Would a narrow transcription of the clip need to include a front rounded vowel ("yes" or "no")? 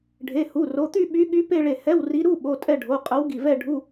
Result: yes